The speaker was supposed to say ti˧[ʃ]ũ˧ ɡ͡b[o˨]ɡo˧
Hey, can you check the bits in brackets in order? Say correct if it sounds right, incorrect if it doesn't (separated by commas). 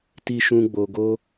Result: correct, correct